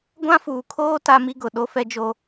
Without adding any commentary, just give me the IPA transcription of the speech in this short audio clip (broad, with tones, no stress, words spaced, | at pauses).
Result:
ɡʷã˦fuː˨kʰoː˦ ta˦mi˦ɡʊ˨ ɗo˦fɛ˦d͡ʒo˦